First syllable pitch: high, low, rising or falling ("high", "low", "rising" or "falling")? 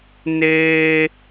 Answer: high